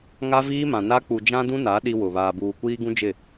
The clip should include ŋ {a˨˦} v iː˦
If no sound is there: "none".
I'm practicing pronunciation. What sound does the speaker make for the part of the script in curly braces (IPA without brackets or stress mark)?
a˦